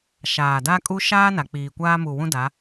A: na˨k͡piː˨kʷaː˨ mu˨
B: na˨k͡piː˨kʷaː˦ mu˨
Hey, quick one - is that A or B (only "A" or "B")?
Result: B